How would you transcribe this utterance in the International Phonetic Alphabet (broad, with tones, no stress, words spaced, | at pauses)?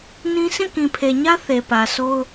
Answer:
nĩ˦ sʰĩ˦˨kĩ˨pʰe˨ɲä˦ θe˨pä˨so˦ʊ̯